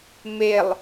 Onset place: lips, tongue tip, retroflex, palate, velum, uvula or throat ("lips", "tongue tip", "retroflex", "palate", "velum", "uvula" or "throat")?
lips